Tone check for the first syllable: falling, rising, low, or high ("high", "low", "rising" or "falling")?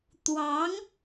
rising